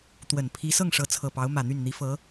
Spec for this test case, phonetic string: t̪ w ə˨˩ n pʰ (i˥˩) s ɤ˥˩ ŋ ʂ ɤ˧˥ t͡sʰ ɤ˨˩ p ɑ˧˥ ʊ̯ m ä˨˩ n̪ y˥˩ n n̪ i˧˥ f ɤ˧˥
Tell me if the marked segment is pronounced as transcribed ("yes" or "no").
no